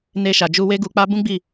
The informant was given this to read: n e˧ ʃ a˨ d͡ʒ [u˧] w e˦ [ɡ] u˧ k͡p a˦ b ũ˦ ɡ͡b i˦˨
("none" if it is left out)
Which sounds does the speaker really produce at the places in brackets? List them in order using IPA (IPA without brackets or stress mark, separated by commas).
u˧, ɡ